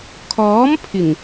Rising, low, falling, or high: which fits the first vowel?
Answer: rising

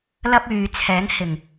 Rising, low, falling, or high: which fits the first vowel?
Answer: high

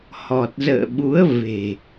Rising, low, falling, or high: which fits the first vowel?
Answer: low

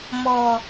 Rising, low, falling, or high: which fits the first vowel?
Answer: low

